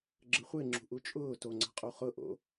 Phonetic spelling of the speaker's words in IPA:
ɡ͡ǁ ə χʷ e ŋ͡ǁ ṳ ʔ u t͡ʃʼ ʊː t o ŋ͡ǀ a̤ qʼ u χ ʊ ʔ o̰

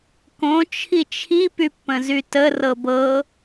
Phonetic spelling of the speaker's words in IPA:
k õ t͡ʃʰ i t͡ʃʰ i p y pː ə̃ z y t ə r ɤ b ɤ

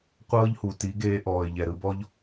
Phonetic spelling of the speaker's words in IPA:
qʷ ɤː˦ ʎ h u˨ t i˨˦ ɡ eː˧ ʔ ɔː˨ ɪ̯ ʎ ɛ˨ ɾ ɯ˧ b ɔ˦ ʎ

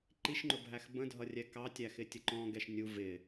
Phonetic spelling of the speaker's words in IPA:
ǃ i ʃ ŋ͡ǃ ʊ bʱ æ x b ə̃ dʱ ʌ rʲ ɛ k ɑ tʲ æ x ɪ tʲ ə ǃ ɔ̃ ɡ ɛ ʃ nʲ u v ɪ

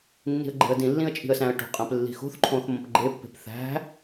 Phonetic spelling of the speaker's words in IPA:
nː i̤ ə̯ ɡ͡ǃ e̤ ə̯ d ĩ lː ĩ ə̯ t͡ʃʼ i̤ ə̯ s æ̃ ə̯ ʈ o̤ qʼ æ̃ p lː i̤ x o̤ θ ǃʰ õ θ m õ p ɡ͡ǃ e pː e̤ p θ æ̤

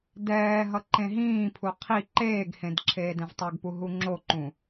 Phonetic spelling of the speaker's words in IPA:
d ɛː ɦ ʌ ǃ ẽ ɦ ĩː pʰ u qʰ i ǃ eː ɡ h ẽ d ǁʰ eː d ɛ̃ v tˤ o ɡ p u ɦ u ŋ͡ǁ o ǃ ũ

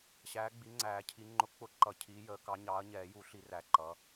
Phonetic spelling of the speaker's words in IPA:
ɕ æː˨˦ ɡ͡b i˨˦ ŋ͡ǀ æː˨˩˦ cʰ i˨˦ ŋ͡ǃ ʊ˨˦ k͡p ʊ˨˦ ǃ ʌ˨˩˦ cʰ iː˨˦ j əː˨˦ k ɑ˨˦ ɲ ɑː˨˦ ɐ̯ ɲ ɛː˨˩˦ j u˨˩˦ ɬ i˨˩˦ r æ˨˦ ǃ ʌ˨˦

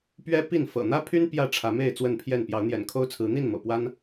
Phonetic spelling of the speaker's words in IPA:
p ɥ ɛ˦ p i˥˨ n f ɤ̰˨˩ n̪ ä˦ pʰ y˦ n p j ä˥˨ ʈ͡ʂʰ ä˨˦ m e˥˨ ɪ̯ t͡s w ə˥˨ n pʰ j ɛ˥˨ n p j ɑ˨˦ ʊ̯ n̪ j ɛ̰˨˩ n kʰ o˦ ʊ̯ t͡sʰ ɹ̩˨˦ n̪ i˥˨ n m ɤ̰˨˩ p w a˦ n

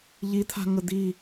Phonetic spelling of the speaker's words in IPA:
ʎ i t̪ʰ a̤ ŋ ə d̪ i

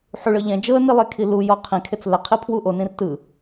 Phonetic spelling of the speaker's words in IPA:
ħ u ɭ ɤ ʎ ɛ̃ d͡ʒ ɤ ə̯ n i lˠ e kʰ i l u j ɔ qʰ ĩ kʰ e t͡s l ɛ qʰ i pʰ w u ʔ o n ĩ r t ɯ

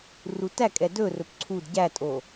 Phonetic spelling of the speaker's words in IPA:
r u t æ kʼ ɛ d ɵ r ɵ p ǀʰ u d ɟ æ tʼ o

